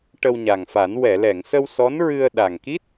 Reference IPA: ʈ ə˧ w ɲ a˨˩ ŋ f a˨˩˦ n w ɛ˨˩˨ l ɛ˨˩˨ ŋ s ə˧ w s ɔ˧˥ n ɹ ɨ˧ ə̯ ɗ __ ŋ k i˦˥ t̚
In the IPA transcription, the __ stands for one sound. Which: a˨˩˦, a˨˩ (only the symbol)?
a˨˩